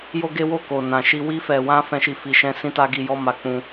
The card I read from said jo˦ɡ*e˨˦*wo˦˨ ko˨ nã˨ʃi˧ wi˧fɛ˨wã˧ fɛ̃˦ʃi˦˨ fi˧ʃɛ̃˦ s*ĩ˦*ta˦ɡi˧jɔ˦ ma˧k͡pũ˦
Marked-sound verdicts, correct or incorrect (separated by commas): incorrect, correct